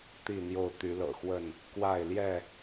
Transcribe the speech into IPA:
t̪ i˥˨ n̪ j o˥˨ ʊ̯ t̪ y˨˦ l ɤ̰˨˩ x w ə˥˨ n | k w a˥˨ ɪ̯ l j ɛ˥˨

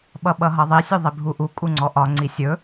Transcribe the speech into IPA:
ɓ ʌ ɓ ʌ ɦ ʌ ðˤ i sʲ ɵ ðˤ i bʱ u ʔ u kʼ u ŋ͡ǀ ɔ ʔ ɒ ŋ͡ǀ i sʲ ɵ

